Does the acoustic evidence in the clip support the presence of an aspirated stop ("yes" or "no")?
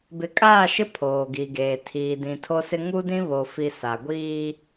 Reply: yes